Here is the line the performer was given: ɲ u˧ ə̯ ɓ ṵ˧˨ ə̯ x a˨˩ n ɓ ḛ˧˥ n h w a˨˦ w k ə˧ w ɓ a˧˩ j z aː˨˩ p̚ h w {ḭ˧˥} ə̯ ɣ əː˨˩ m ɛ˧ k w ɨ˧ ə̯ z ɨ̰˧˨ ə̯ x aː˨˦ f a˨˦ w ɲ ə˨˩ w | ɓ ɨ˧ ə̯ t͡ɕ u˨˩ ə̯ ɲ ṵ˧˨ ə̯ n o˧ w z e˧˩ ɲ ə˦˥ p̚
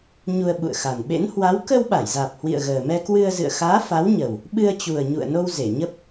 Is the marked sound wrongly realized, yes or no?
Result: yes